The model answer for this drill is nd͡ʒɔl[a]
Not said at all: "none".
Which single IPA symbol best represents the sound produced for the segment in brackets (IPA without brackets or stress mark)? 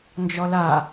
a